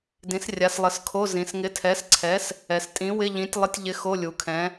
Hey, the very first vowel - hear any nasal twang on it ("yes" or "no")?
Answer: yes